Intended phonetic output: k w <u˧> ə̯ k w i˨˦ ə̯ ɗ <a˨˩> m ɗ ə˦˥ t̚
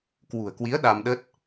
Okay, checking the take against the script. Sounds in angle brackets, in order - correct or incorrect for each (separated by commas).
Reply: incorrect, incorrect